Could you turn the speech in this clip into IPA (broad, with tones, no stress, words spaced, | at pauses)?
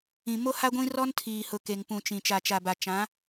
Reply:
ĩ˨mo˦ha˦ɡʷĩ˦ rɔ˦ntʰiː˨hʊ˨ ke˨ŋpũ˨t͡ʃĩ˨ t͡ʃa˨t͡ʃa˨ba˨ t͡ʃã˨˦